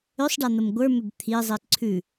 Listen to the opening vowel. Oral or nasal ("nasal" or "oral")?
oral